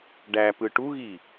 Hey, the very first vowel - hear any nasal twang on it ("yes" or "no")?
no